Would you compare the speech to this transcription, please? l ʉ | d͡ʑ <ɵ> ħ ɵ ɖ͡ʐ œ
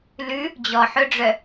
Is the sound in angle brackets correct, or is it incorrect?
incorrect